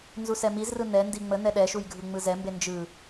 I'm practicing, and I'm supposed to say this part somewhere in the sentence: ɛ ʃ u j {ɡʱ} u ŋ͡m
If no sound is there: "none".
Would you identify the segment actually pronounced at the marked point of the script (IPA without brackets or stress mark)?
ɡʱ